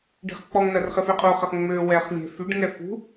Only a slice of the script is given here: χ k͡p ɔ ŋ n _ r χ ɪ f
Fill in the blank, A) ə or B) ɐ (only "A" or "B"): B